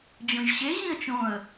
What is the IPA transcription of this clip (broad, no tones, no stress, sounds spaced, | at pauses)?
d͡ʑ õ ʒ ɕ e ʑ ĩ ə̯ t͡ʃ õ ə̯